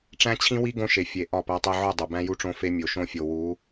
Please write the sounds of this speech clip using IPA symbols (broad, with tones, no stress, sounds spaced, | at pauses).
ʈ͡ʂ æ̃˦ t͡ɕʰ ĩ˦ w i˦ ɡ õ˦ ʃ e˨ fʲ e˨ ʔ ɒ˦˨ p æ˦ tˤ e˦ ʕ o˦˨ dˤ o˨ b æ̃˦ j u˦ ʈ͡ʂ õ˦ f e˦ mʲ o˨ ʃ õ˦ fʲ o˨ w u˨˦